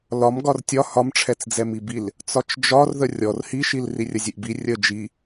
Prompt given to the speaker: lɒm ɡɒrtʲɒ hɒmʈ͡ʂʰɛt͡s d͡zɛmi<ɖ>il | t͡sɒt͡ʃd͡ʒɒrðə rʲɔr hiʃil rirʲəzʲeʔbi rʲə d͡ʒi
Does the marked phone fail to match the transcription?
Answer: yes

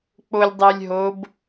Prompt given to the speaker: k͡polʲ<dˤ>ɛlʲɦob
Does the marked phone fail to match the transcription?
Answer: no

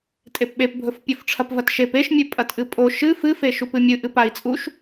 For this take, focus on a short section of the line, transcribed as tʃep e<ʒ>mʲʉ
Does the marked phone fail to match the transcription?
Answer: yes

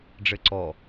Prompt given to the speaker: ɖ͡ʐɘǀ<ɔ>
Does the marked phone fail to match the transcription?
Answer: no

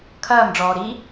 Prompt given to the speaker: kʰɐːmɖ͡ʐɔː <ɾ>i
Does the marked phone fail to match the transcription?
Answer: no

